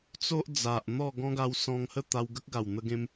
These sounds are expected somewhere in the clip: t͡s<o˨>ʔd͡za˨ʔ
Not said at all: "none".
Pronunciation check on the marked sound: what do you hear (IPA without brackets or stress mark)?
o˦